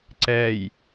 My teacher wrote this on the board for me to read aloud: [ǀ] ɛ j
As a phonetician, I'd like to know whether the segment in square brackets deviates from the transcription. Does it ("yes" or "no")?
no